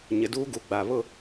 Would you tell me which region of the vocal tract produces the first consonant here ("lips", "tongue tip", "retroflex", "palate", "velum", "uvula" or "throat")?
palate